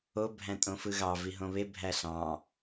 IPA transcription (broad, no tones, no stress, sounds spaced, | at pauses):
o bʱ æ̃ tʼ õ f ɯ ɣ ɑ v i ɦ õ β e bʱ æ ɬ ɑ̃